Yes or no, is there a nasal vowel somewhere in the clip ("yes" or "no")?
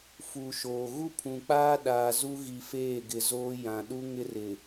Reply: yes